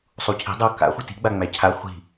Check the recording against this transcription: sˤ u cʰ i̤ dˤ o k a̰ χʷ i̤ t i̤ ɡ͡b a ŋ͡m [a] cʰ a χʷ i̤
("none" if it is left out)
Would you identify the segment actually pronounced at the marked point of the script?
æ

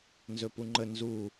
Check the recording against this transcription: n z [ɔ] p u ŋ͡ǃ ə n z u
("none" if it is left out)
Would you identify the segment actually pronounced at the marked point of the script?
ɵ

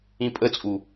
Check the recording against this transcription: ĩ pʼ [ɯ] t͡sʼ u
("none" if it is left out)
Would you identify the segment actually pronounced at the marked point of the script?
ə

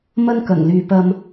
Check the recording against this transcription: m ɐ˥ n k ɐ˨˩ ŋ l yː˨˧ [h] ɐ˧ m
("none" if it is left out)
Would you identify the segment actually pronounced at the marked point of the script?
p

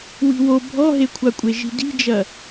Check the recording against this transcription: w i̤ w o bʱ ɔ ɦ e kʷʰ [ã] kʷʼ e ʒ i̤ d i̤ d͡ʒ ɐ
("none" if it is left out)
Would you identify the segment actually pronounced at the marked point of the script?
a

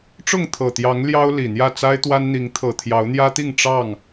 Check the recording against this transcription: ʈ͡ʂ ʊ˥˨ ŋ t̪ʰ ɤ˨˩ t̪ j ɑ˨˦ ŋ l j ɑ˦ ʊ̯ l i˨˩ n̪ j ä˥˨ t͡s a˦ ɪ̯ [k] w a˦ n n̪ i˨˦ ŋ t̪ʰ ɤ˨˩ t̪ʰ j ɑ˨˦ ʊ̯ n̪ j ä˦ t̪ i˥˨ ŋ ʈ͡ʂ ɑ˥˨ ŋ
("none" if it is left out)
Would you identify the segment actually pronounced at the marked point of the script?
t̪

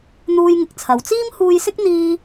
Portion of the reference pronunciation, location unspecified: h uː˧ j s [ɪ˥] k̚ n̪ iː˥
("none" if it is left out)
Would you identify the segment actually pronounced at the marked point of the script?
ɪ˥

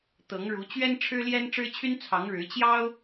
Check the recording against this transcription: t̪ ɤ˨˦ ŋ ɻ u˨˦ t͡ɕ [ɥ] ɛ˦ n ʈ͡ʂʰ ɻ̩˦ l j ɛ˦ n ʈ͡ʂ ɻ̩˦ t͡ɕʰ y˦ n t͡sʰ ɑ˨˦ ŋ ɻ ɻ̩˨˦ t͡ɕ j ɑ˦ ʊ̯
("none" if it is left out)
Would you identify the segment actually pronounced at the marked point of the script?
ɥ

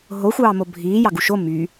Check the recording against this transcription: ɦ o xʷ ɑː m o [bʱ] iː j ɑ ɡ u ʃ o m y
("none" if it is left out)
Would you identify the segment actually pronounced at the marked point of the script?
bʱ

